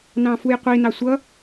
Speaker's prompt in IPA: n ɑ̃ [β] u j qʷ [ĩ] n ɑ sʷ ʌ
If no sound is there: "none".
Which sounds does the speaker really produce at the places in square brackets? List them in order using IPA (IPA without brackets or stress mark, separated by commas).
f, i